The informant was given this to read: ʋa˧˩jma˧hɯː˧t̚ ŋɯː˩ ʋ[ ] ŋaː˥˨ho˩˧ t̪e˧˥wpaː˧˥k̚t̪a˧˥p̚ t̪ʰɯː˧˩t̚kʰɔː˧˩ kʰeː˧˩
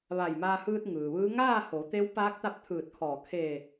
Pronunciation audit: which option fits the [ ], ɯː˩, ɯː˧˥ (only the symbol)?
ɯː˧˥